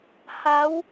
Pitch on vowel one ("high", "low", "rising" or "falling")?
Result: rising